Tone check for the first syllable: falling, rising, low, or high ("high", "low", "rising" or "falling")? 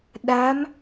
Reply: rising